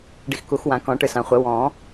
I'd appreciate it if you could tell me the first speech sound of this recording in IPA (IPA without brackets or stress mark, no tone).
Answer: ɖ